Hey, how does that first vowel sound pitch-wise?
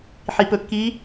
low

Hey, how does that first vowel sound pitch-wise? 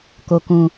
low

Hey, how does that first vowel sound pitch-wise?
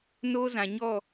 high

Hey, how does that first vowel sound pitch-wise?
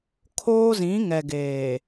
high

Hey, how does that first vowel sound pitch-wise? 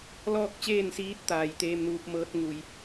falling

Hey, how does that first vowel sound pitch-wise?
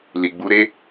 low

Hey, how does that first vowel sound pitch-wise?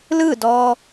falling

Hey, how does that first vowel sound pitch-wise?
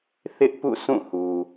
high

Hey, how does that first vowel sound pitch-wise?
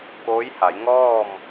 rising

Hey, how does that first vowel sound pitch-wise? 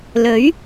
rising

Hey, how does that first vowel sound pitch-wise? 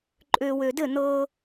low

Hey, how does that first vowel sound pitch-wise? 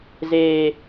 high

